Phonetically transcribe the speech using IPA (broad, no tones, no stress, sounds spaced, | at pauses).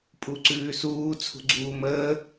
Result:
pʼ u ǀ ʉː s uː t͡sʰ ṳ ɡ͡ǀ uː m əː